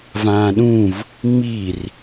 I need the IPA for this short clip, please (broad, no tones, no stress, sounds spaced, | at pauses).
v ãː ɗ ũ v | ŋ͡m i r